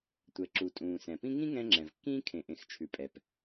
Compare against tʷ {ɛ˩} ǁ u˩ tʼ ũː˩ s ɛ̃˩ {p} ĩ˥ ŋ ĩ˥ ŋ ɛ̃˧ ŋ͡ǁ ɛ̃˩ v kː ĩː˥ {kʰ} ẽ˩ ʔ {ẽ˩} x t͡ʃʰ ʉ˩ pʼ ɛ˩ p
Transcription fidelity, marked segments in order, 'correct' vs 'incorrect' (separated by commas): correct, correct, correct, correct